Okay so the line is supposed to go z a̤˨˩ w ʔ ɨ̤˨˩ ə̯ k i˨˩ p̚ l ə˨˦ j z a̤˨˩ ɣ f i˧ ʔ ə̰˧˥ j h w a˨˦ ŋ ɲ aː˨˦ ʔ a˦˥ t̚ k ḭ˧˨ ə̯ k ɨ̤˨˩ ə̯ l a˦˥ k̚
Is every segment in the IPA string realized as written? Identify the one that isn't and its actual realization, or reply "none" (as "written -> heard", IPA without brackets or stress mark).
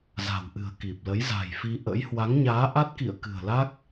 ɣ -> j